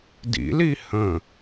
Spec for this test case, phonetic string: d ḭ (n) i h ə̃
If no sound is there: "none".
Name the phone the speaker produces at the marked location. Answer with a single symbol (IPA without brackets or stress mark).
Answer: l